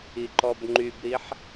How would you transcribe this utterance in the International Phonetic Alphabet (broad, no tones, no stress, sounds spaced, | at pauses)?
i ǃ ɔ b ŋ͡ǃ y b ɾ i ħ